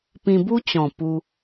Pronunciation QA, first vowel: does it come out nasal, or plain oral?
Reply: nasal